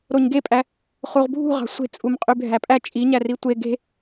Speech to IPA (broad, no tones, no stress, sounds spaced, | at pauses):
ɾ o ɲ ɡ e pʼ æ | χ u ʁ bʱ ṳ ʁ ɑ̤ sʷ e̤ t͡sʼ u m qʼ y bʱ æ pʼ æ t͡ʃʼ i ɲ æ r i tʷ e ɡ e̤